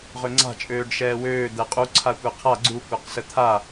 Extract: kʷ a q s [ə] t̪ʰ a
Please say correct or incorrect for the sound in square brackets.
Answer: correct